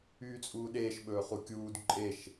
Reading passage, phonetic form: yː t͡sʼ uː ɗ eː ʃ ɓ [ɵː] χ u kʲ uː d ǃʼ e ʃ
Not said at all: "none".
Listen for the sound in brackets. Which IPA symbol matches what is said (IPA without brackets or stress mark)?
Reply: ɵː